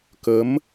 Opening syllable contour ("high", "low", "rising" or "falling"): rising